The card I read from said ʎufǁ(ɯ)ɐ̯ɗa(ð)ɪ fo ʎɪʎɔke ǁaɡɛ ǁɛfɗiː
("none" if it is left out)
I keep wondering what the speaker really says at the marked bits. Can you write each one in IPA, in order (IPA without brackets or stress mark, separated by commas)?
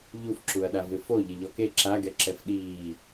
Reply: u, v